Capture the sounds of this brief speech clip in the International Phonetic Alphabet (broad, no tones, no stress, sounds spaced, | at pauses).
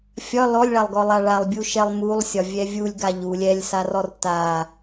fʲ ɒ l ɔ lʲ ɭ a lˠ ɡ ɔ lˠ a ɭ a lˠ bʲ u ʃ ɛ lˠ m u lˠ sʲ ɒ vʲ ɛ vʲ u lʲ ɡ a ʎ u lʲ ɛ lʲ s a r ɔ r t a